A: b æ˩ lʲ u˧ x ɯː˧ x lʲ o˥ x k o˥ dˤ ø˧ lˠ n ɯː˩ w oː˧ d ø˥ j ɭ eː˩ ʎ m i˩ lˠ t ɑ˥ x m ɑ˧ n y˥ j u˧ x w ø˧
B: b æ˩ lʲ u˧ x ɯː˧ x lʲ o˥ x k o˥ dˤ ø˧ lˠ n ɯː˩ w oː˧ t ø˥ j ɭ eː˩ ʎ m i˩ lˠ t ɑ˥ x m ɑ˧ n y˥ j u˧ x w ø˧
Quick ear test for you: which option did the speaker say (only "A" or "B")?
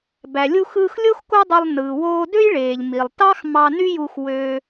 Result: A